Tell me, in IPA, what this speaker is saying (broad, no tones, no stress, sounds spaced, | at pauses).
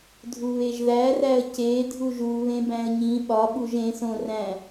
dʱ u β e ʒ ð æ r æ ə̯ c e dʱ u ʒ u β ẽ b æ̃ ə̯ ɲ ĩ ɓ ɒ ɓ u ʒ ẽ s õ r æ̃